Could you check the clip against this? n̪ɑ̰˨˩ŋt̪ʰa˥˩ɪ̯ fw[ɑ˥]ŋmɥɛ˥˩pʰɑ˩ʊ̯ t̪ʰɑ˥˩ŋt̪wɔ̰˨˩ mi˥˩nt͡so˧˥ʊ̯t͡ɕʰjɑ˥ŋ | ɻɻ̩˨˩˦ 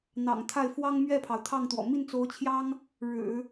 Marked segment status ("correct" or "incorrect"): correct